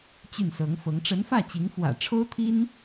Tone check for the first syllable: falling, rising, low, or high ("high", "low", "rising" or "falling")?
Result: falling